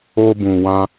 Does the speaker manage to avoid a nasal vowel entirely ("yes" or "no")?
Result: no